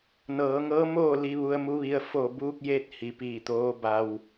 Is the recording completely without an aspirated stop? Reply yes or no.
yes